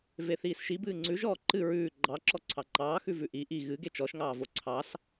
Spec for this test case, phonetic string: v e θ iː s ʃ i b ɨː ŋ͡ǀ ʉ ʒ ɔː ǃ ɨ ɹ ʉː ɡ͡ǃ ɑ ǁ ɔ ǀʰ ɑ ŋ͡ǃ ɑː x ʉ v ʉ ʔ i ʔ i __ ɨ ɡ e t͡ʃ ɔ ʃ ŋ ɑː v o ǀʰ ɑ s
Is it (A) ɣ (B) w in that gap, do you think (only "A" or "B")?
A